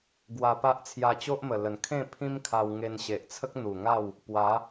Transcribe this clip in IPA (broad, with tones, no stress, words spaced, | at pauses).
ɡwa˧pa˦ʔ t͡sʰja˧t͡ɕo˦ʔmə˨˩lə˨˩n kʰẽ˥˧ pʰĩ˦mkʰa˧wŋe˧n ɕe˨ʔt͡sʰə˦k̚n̪u˨˩ŋa˥˧w | pwa˨˦